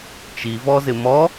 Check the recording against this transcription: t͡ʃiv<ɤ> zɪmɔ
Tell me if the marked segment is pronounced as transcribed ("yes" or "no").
no